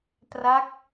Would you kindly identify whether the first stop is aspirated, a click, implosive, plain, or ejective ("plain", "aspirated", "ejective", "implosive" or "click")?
plain